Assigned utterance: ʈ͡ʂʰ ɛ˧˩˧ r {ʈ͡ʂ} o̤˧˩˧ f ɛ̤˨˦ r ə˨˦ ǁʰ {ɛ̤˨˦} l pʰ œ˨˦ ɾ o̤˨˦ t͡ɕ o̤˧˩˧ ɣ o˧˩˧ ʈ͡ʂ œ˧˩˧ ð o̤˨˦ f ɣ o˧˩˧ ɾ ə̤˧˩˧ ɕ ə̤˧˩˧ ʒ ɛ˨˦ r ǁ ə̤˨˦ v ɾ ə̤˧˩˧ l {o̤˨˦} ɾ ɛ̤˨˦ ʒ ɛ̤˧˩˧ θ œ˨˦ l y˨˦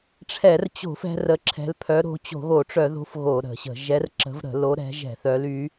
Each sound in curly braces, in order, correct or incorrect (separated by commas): incorrect, correct, incorrect